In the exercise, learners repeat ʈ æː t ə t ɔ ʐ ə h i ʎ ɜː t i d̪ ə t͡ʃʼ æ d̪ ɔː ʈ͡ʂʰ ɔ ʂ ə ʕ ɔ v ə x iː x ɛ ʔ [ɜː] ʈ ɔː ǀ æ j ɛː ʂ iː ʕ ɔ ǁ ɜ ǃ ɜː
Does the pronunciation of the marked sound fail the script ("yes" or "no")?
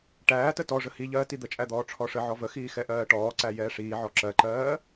no